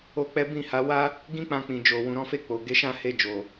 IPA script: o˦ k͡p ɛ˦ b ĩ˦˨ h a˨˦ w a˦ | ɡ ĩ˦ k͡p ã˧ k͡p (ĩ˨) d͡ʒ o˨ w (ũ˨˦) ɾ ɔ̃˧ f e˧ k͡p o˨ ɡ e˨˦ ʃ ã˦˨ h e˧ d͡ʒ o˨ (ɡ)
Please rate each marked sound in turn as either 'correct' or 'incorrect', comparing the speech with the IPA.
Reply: correct, incorrect: ũ˨, incorrect: none

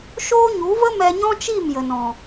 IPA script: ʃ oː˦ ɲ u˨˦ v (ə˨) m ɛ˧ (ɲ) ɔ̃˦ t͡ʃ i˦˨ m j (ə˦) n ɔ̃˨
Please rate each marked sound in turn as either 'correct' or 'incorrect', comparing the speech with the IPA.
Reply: incorrect: ə˦, correct, incorrect: ə˨

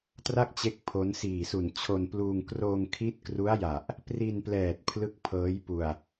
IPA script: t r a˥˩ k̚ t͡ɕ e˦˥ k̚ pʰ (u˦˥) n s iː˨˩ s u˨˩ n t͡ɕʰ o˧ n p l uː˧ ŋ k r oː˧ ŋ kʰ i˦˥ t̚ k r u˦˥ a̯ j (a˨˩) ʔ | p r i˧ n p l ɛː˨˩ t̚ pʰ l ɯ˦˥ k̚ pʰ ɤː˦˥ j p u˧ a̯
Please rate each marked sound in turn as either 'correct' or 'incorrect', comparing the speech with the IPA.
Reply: incorrect: o˦˥, correct

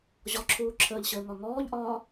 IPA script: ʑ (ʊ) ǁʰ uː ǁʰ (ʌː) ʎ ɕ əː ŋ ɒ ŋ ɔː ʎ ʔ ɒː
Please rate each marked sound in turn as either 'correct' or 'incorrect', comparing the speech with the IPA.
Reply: incorrect: ɔ, incorrect: əː

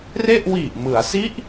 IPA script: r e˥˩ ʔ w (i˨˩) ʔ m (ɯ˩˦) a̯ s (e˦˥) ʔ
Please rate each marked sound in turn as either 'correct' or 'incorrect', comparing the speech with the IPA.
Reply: correct, correct, incorrect: i˦˥

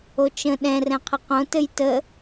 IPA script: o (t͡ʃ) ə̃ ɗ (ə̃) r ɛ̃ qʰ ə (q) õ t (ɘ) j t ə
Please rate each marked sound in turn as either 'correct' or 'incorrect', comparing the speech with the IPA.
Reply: correct, incorrect: ɛ̃, correct, correct

